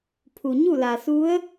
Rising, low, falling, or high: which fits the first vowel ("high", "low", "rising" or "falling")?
low